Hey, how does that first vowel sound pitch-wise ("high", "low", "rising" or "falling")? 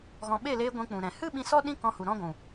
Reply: low